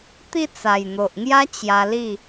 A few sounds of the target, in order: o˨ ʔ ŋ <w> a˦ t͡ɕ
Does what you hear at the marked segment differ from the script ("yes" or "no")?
yes